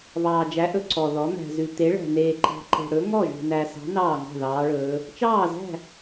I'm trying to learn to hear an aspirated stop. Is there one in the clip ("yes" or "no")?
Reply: no